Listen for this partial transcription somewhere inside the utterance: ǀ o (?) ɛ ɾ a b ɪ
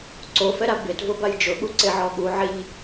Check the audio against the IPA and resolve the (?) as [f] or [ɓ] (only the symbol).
f